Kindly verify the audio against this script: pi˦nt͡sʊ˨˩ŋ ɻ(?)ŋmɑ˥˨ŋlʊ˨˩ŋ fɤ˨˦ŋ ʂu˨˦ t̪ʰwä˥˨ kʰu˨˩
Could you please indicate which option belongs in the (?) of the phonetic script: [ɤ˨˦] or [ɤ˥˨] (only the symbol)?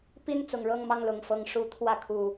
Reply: ɤ˥˨